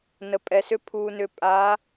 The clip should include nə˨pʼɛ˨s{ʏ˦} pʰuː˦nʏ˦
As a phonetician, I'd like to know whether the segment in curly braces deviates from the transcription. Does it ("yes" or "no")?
no